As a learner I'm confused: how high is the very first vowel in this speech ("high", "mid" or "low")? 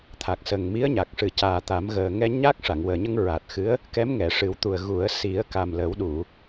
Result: low